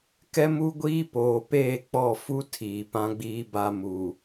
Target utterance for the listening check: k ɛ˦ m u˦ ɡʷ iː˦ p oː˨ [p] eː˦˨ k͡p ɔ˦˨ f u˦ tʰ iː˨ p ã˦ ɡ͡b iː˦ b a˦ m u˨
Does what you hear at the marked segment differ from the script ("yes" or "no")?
no